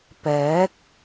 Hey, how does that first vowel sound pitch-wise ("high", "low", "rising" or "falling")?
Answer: rising